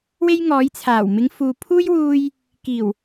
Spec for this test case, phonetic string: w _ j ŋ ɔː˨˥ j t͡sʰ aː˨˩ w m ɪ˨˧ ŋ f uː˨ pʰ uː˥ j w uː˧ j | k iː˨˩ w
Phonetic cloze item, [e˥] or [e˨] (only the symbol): e˥